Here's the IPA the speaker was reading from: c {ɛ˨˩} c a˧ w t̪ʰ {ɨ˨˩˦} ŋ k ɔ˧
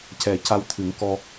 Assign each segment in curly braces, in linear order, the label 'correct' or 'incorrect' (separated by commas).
correct, correct